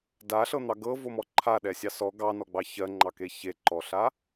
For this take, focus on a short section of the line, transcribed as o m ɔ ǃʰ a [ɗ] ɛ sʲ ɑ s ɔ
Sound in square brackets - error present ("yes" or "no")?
no